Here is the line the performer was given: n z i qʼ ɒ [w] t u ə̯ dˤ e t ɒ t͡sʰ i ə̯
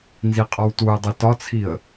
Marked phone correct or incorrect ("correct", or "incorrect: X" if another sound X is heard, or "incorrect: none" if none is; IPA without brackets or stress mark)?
correct